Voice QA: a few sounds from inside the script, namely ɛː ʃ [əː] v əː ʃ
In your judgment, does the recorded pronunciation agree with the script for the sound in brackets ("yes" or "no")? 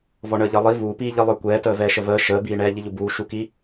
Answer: no